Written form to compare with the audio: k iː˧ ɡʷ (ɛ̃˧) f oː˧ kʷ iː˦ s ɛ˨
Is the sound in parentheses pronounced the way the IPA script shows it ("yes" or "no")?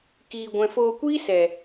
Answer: yes